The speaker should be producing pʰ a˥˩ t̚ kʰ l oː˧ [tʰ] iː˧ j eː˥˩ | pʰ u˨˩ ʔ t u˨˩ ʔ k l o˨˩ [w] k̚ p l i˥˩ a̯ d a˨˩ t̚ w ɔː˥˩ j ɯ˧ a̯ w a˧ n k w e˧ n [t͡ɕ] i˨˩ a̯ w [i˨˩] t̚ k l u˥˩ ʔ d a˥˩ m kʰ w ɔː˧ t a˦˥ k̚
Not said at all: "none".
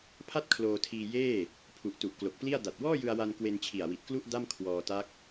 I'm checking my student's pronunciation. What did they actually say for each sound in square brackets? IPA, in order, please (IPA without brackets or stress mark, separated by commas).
tʰ, none, t͡ɕʰ, i˨˩